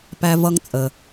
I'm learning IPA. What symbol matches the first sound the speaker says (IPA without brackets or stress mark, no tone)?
p